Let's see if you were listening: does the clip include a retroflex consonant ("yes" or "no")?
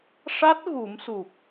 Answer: yes